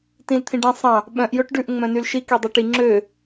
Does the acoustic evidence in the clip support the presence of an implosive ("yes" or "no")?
yes